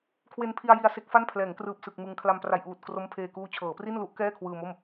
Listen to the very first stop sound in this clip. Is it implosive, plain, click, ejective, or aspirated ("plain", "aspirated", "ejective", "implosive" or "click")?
aspirated